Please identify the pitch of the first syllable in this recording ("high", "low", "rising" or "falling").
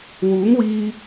rising